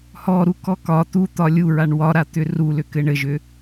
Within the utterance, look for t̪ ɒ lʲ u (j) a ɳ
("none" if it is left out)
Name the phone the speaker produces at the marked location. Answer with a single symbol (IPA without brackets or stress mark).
ɹ